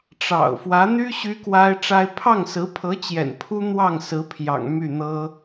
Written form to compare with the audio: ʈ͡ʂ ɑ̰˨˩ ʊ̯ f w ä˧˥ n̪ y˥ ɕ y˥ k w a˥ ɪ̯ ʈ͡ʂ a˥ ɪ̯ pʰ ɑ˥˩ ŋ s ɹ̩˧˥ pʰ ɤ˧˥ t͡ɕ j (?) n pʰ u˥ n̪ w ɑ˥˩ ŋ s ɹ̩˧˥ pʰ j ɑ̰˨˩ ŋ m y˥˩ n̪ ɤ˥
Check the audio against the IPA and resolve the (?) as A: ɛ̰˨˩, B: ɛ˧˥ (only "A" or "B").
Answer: A